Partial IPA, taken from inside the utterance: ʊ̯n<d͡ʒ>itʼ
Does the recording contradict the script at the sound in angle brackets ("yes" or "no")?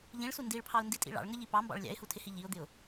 yes